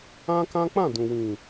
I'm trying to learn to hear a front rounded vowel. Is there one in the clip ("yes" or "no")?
no